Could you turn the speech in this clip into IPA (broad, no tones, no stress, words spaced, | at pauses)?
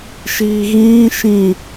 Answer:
ʃiːɣĩː ʃĩ